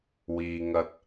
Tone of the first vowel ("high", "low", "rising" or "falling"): low